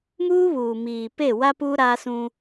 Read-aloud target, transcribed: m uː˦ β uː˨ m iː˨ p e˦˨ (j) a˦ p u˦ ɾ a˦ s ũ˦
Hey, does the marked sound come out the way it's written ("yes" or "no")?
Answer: no